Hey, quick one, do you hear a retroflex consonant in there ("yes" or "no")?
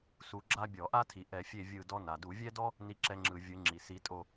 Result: no